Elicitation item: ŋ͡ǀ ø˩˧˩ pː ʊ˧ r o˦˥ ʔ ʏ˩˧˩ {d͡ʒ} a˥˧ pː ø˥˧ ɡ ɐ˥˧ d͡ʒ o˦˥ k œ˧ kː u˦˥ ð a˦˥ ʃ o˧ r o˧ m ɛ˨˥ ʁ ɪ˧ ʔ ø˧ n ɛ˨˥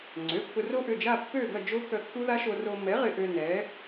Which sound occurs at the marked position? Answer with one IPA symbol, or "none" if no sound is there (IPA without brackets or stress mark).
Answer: d͡ʒ